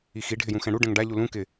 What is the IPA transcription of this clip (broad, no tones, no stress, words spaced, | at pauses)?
ixi ɖʱɪjũxɛ̃ɽu ɖɛ̃ŋɖa ʎulũ kɪ